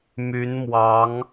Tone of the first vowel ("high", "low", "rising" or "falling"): rising